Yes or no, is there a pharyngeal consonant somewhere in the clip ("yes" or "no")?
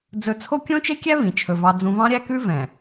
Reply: no